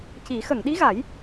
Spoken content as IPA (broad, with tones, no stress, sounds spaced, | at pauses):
c i˨˩˦ x ə˨˩˨ ŋ ɗ i˧˥ ɣ a˨˩˦ j